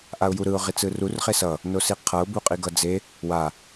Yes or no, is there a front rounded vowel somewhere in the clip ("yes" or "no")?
no